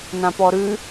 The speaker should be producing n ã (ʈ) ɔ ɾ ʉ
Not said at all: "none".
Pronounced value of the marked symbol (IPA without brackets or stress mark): p